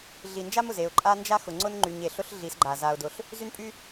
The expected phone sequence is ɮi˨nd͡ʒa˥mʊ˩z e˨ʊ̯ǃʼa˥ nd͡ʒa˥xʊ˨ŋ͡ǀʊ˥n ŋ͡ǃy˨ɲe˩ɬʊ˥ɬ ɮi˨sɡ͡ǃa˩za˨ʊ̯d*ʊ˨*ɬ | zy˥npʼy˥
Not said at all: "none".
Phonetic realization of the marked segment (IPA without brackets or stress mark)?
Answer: ʊ˨